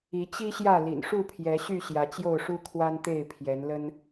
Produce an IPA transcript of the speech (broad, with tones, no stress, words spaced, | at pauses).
i˨˦t͡ɕi˦ɕjä˥˨ lḭ˨˩nʂu˥˨pʰjɛ˨˦ɕy˥˨ ɕjä˨˦t͡ɕjo˥˨ʊ̯ʂu˦ kʰwa˦nt̪e˥˨ɪ̯pʰjɛ˨˦nlə˦n